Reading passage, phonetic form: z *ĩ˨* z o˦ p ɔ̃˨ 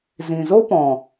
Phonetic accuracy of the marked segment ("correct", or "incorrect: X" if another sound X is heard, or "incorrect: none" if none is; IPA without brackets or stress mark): correct